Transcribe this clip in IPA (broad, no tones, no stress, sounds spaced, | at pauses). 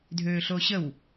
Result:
dʱ øː ɬ oː ɕ ə w